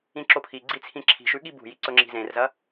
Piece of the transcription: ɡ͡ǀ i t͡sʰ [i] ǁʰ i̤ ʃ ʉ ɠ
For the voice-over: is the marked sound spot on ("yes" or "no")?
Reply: no